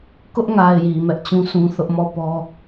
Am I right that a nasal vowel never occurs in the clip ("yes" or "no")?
no